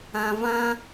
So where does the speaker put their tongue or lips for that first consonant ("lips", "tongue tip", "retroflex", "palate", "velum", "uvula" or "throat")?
lips